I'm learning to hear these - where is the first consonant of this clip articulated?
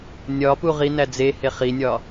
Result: tongue tip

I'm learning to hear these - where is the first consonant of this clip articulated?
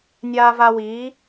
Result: tongue tip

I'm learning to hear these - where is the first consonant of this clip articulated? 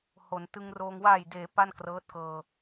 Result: throat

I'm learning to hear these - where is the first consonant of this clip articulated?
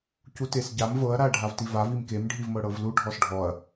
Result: palate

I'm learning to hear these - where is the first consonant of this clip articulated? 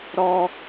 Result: tongue tip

